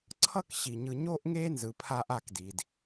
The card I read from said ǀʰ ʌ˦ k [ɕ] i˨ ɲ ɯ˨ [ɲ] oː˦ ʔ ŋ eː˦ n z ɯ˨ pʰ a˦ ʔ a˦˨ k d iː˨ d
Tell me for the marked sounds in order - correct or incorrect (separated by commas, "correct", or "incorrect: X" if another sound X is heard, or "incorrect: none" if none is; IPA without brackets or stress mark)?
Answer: correct, correct